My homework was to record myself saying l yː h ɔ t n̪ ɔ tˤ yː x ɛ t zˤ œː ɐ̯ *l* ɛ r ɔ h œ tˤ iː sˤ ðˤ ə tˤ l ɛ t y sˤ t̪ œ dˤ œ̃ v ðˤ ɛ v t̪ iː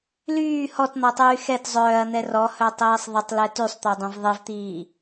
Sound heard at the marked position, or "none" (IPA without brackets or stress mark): n̪